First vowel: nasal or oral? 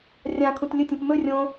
nasal